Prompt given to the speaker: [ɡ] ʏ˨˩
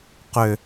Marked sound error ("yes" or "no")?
yes